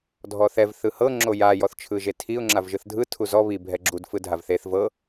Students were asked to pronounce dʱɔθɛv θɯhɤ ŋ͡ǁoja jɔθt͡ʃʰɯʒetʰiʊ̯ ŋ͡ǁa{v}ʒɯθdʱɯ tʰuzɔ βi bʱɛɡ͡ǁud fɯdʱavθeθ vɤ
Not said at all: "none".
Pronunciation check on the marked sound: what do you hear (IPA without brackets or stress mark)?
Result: v